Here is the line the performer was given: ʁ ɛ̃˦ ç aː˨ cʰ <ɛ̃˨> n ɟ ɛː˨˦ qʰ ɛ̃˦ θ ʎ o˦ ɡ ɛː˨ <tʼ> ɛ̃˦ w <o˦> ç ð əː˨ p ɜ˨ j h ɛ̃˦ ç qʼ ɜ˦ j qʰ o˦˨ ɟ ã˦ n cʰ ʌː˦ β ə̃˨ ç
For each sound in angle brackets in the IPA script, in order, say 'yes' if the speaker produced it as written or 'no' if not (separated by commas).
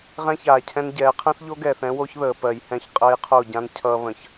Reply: no, no, yes